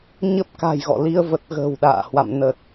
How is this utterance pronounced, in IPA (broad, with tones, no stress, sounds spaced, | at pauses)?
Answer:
ɲ ə˦˥ p̚ k a̤˨˩ j ɣ ɔ̰˧˨ l i˧ ə̯ v ə˨˩ t̚ ɣ ə̤ː˨˩ w ɗ a̰ː˧˨ h w a̰˧˨ m n ə˨˩ t̚